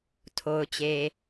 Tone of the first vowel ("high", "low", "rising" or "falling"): low